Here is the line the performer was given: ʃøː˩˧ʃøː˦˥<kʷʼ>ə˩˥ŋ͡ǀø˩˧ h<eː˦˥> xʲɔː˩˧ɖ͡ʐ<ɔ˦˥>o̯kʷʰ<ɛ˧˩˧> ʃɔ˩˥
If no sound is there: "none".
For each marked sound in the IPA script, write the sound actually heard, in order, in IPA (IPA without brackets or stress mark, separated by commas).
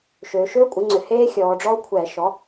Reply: kʷʼ, eː˦˥, ɔ˦˥, ɛ˧˩˧